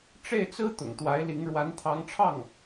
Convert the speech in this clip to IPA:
ʈ͡ʂe˥˩ɪ̯t͡sɹ̩˥ t̪ʊ̰˨˩ŋt̪wa˧˥ɪ̯li˧˥ŋ ɻwa˧˥nt̪ʰɑ˧˥ŋʈ͡ʂʰɑ˥˩ŋ

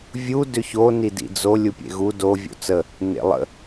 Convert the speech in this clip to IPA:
vʲu dʏço nidḭd͡zo lʲupʲḛɣu do vʲo̰t͡sə | nḛlˠə̰

